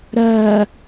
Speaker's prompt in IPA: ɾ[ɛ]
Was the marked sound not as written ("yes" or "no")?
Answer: yes